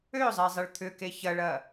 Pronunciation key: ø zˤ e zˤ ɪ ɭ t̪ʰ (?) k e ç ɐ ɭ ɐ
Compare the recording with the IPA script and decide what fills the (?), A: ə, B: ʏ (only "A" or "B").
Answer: B